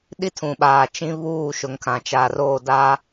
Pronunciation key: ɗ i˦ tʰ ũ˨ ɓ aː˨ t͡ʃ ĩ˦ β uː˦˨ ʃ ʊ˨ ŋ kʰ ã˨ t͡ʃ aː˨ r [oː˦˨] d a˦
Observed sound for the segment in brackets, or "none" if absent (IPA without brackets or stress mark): oː˦˨